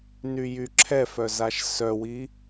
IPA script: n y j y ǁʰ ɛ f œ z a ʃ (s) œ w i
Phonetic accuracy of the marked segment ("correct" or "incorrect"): correct